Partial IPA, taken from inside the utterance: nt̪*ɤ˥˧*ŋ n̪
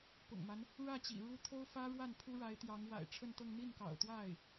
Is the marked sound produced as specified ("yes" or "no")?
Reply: yes